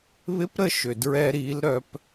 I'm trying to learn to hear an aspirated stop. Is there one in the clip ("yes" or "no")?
no